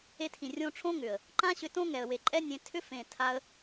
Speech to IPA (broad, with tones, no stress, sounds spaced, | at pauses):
e˧ tʰ ĩ˨ rʲ õ˧ ʈ͡ʂʰ õ˦ ŋ ʏ˨ ə̯ | ǃ ã˦ ɕ ʏ˧ t õ˦ ŋ ɛ˨ ə̯ w e˨ ǃʼ ɛ˦ nʲ ẽ˧ tʰ ʏ˦ f ẽ˨ tʰ a˧ ə̯